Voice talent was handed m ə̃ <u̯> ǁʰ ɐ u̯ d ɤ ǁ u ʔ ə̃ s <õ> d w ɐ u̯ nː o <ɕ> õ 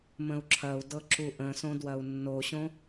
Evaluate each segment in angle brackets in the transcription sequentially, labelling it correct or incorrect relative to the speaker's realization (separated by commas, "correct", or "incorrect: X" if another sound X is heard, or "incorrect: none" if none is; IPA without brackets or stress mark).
correct, correct, correct